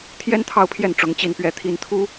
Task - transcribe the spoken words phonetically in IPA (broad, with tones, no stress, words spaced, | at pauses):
t̪ʰjɛ˥nt̪ʰɑ˥˧ʊ̯pʰjɛ˥˩n ʈ͡ʂʊ˧˥ŋt͡ɕi˥˧npɥɛ˥˩t̪ʰi˥n t̪ʰu˥